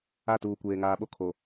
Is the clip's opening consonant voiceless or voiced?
voiceless